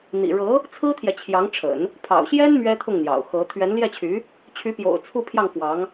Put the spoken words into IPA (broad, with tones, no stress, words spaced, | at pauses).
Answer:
n̪ḭ˨˩ɻɤ˧˥ | t͡sʰɹ̩˥t̪ʰjɛ˨t͡ɕʰjɑ˧˥ŋʈ͡ʂʰə̰˨˩˦n | pʰɑ̰˨˩ʊ̯ɕjɛ˥n mɥɛ˥t̪ʰʊ˥˩ŋn̪jɑ̰˨˩ʊ̯ xɤ˧˥ t̪ʰɥɛ˧˥nljɛ˥˩t͡ɕʰy˧˥ | t͡ɕʰy˧˥pjo̰˨˩ʊ̯ t͡sʰu˥˧pʰjɑ˥˩ŋfwɑ˧˥ŋ